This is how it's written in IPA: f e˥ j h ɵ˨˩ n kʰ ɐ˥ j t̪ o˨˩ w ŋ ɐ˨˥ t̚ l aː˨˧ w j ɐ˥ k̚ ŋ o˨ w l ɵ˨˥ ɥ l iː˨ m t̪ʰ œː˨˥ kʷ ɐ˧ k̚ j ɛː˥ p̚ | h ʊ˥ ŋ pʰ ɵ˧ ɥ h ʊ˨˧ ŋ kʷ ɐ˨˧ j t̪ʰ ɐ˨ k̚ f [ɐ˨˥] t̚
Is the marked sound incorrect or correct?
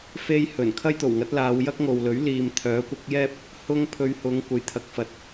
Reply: incorrect